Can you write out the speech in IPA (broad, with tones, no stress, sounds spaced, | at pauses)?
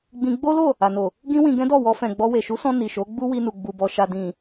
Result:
ɡ͡b ĩ˧ ɡ͡b o˦ l o˦˨ | a˨ n o˨ | ɡ ĩ˦ w ĩ˧ ɡ ɛ̃˦ d ɔ˦˨ w ɔ˧ f ɛ̃˨ ɡ͡b ɔ˧ w e˨ ʃ u˨˦ s ɔ̃˧ n i˨ ʃ o˨˦ ɡ͡b u˦ w i˧ n u˨ ɡ͡b u˨ b ɔ˨ ʃ a˨ d ĩ˨